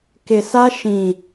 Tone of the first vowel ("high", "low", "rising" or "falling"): low